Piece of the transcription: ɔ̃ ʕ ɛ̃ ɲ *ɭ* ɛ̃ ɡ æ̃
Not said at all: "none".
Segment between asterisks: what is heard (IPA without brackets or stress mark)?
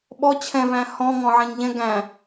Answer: ʎ